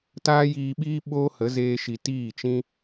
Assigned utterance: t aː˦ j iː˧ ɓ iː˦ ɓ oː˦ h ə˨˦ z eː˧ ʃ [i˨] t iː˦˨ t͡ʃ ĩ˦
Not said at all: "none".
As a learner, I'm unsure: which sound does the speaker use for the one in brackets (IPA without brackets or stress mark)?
i˨